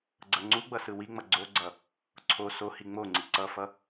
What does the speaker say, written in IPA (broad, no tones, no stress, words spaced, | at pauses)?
ɡ͡ǀʌŋ͡ǀuɡ͡bʌ sɯwiŋ͡mʌ ɡ͡ǀoɡ͡ǀʌ | ǀʰo sohi ŋ͡moŋ͡ǀi ǀʌfʌ